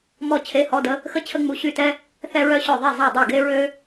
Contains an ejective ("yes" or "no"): no